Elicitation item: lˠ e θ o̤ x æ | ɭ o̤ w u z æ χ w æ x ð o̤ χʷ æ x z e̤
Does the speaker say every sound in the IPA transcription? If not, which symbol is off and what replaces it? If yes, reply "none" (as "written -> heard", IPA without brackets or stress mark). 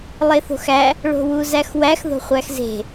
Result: χ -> x